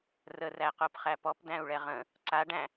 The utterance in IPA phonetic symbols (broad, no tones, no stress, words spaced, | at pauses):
rəræqopχæ pɔpdæ̃u̯ɭɛ ʁə̃ | ǀaɖæ̃